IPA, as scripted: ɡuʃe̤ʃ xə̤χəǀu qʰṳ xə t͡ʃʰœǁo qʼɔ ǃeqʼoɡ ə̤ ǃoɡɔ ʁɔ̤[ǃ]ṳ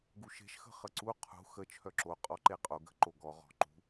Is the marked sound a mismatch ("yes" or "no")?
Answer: no